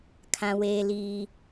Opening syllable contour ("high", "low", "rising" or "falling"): high